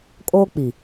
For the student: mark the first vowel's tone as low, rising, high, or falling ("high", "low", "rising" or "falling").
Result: high